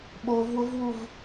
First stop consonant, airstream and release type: implosive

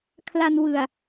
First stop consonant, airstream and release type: aspirated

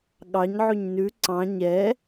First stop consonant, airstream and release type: implosive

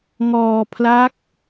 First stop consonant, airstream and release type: aspirated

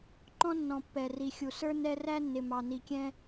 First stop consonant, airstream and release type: click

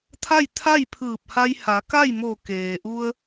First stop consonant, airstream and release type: aspirated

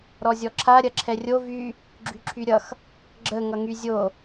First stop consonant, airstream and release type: click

